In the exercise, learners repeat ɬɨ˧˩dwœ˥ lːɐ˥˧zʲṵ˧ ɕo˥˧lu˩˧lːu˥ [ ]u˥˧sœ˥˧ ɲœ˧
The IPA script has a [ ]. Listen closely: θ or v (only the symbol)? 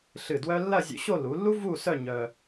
v